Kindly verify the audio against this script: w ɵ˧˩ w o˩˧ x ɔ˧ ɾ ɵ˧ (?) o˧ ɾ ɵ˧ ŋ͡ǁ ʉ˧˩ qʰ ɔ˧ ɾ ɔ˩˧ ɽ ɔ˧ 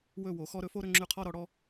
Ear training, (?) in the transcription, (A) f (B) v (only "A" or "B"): A